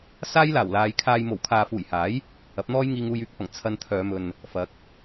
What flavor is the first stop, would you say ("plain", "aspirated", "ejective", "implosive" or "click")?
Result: aspirated